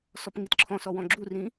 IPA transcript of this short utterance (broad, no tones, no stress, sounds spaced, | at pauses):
s ɔ p ŋ i t ǁʰ ɔ̃ s ɔ w ɔ̃ ɡ͡ǁ u r ĩ